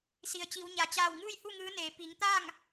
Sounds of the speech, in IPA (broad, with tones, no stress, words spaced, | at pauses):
si˩ə̯t͡ɕi˩˧wɲa˩ t͡ɕaː˧˩wŋɯː˥˨jhu˥˨ ŋɯː˧˥neː˩˧ pi˩˧ŋt̪aː˥˨ŋ